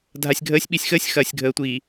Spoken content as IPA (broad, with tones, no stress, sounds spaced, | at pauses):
dʱ a˨ sʲ ɡʱ əː˨˦ sʲ ɓ i˨ sʲ x əː˦ sʲ x ɐː˨ sʲ ɡʱ əː˨ tʷ iː˨